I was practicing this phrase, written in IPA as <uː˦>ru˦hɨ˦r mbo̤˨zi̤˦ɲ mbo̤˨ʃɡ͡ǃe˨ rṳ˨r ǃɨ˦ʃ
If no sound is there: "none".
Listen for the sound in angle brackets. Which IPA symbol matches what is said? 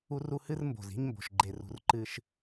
u˦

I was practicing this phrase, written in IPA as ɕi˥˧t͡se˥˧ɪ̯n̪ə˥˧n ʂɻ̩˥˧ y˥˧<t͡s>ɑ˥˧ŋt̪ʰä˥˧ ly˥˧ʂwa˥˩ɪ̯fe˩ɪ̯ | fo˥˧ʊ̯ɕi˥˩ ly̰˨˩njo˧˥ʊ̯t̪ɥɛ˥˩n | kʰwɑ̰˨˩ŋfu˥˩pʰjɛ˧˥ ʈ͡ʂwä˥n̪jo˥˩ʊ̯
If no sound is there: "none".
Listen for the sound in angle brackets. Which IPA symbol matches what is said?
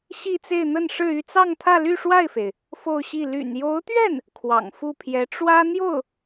t͡s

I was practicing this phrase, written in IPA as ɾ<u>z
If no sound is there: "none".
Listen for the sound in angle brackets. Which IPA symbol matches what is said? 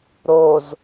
o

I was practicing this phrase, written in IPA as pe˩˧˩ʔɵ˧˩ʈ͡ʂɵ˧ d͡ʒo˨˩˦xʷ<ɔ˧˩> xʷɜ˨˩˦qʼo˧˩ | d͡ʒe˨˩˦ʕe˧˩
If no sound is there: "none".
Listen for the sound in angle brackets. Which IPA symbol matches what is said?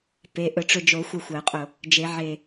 ə˧˩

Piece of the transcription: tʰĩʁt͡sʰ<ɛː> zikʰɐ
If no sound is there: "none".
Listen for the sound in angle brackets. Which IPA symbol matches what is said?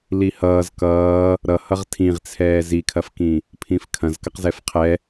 ɛː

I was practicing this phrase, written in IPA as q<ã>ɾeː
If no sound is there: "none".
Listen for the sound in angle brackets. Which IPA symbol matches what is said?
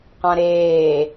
ã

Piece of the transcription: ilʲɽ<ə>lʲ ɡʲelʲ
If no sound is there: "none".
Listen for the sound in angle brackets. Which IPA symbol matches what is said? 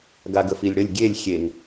ə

